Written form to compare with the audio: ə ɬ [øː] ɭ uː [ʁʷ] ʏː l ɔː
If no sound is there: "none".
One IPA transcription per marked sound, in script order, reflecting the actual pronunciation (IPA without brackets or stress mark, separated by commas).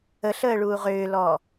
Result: əː, ʁ